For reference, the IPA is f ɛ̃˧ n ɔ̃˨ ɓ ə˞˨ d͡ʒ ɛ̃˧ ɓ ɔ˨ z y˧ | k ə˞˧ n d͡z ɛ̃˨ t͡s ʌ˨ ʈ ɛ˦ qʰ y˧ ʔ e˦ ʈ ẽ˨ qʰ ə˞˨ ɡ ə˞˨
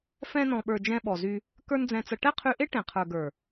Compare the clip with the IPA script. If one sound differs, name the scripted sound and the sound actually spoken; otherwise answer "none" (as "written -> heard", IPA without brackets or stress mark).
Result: none